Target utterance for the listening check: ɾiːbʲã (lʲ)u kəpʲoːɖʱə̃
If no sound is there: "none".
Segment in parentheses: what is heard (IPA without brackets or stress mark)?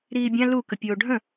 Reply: l